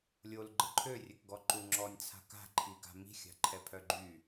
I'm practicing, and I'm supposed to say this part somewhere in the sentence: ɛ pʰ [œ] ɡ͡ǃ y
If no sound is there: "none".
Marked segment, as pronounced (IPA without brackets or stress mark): œ